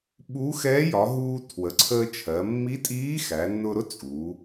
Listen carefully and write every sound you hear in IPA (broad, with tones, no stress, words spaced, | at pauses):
ɓu˧˥ xɛː˧˥jɒ˩˧ɦuː˧ tʰwə˩˧ǀʰəː˧ t͡ʃʰɜ˩˧ mːi˧˥tʼiː˧˥ xæ˩˧nːʊ˧ɾʊ˥ t͡sʼu˩˧